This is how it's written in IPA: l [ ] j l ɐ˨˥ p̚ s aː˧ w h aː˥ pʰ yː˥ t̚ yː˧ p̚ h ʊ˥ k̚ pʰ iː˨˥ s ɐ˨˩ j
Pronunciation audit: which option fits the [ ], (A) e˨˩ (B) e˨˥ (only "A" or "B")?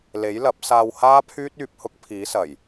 B